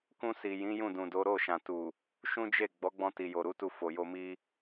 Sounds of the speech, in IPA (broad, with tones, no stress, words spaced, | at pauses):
kũ˧si˨ jĩ˨˦jũ˦˨dũ˨do˨˦ ɾo˦˨ʃã˨tu˨ | ʃũ˦d͡ʒe˦˨ ɡ͡bɔ˨˦ɡ͡bɔ̃˧ti˨jo˨ ɾu˨˦tu˧fo˨jo˧ mi˦